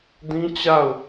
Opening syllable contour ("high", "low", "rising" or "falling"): high